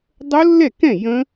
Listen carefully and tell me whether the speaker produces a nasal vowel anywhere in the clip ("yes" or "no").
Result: yes